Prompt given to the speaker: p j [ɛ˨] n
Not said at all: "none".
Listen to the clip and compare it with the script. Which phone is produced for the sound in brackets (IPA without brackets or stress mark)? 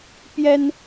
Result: ɛ˥